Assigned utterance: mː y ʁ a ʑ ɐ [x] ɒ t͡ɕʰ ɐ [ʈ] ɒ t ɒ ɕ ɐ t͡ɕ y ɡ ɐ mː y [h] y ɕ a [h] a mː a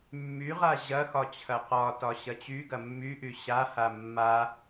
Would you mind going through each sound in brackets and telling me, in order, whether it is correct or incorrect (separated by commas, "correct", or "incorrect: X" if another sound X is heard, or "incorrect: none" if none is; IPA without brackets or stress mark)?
correct, incorrect: q, incorrect: ʔ, correct